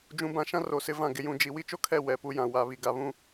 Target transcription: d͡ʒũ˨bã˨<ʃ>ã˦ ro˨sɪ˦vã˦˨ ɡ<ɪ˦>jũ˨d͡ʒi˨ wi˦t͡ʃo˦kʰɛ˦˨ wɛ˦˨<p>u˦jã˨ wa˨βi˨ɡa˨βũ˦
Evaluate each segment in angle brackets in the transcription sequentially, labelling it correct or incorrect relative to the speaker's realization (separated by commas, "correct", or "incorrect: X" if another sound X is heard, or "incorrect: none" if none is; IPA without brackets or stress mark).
correct, incorrect: ɪ˨, correct